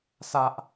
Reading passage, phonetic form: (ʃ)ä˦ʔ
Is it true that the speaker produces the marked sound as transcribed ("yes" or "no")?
no